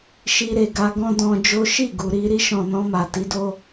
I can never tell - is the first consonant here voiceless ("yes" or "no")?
yes